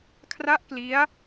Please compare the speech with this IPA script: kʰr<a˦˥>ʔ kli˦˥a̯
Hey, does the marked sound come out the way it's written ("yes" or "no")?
yes